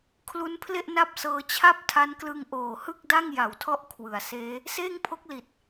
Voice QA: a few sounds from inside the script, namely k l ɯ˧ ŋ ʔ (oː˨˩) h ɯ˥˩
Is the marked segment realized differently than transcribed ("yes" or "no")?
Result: no